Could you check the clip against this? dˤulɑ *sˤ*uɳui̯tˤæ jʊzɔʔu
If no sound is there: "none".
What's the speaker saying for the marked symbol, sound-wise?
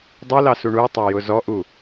s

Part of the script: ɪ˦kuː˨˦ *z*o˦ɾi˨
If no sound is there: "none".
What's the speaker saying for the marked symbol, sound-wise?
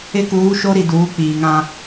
ʃ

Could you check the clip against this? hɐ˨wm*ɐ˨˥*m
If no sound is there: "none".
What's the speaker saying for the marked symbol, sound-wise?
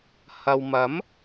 ɐ˨˥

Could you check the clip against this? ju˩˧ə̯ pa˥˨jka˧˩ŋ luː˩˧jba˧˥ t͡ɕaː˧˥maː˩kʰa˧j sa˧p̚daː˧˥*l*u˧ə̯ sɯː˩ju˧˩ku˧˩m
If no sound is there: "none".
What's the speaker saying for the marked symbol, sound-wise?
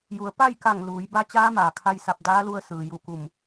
l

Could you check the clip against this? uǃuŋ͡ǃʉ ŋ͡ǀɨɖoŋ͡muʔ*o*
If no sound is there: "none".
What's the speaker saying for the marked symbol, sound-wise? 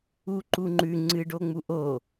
o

